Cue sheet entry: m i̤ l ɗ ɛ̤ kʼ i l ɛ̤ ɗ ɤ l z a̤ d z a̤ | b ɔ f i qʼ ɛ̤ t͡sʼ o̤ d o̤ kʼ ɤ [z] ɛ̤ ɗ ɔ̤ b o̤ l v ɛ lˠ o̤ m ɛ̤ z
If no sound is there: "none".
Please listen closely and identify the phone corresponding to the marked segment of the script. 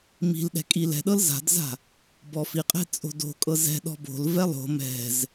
z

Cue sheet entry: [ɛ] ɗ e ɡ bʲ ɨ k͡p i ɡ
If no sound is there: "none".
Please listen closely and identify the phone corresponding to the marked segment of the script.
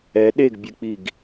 ɛ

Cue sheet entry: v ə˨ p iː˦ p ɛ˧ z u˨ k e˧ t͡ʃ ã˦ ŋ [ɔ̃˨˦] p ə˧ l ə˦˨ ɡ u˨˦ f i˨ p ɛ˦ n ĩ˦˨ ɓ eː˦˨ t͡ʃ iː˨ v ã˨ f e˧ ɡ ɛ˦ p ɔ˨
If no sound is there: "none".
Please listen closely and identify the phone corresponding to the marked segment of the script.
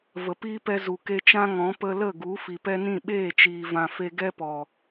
ɔ̃˨˦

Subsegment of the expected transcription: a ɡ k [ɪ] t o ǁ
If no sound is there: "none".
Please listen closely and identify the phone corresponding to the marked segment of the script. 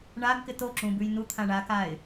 ɪ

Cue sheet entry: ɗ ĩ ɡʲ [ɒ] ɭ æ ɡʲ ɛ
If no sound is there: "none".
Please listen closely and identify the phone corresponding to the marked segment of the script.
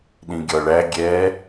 ɒ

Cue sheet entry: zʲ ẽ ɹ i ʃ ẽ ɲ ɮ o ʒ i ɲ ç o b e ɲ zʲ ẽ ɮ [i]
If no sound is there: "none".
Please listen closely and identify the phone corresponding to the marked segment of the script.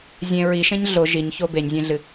ɨ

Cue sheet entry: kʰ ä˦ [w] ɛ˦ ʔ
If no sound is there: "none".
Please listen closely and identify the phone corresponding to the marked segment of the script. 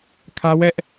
w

